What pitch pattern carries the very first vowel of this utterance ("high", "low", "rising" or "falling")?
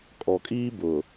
low